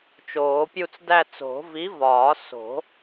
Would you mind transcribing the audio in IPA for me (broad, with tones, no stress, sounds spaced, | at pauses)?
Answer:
t͡ʃ oː˨˩˦ pʲ u˥˧ t͡s d æ˥˧ t͡s o̤˨˩˦ v i˨˥ v ɒː˨˩˦ s o̤˨˩˦